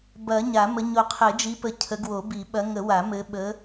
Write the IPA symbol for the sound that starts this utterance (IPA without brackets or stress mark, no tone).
b